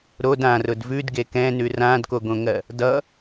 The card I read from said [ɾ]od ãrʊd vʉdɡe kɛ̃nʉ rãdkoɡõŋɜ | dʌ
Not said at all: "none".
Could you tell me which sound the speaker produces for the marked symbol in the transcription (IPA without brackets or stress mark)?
ɾ